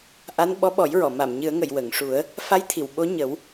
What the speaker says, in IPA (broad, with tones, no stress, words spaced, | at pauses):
ʔa˧˥n ɓɔ˧˥ɓɔ˨˩˦jɹɔ˨˩˨ ma˨˩˨mɲɨ˨˩˦ə̯ŋə˨˩˨j wə˨˩˨ŋʂu˨˩˦ə̯ | fa˧˥jt̪ʰi˨˩˨w ɓo˧˥ɲə˨˩˦w